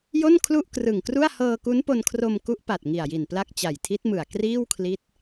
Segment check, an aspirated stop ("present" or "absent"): present